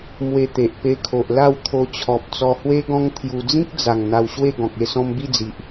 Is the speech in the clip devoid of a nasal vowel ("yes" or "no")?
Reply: no